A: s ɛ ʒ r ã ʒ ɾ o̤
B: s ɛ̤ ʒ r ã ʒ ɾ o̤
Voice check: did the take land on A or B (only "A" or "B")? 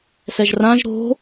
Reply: A